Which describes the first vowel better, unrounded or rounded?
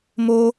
rounded